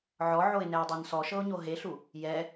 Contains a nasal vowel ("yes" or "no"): no